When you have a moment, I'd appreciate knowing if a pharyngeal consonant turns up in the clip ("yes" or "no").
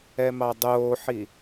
yes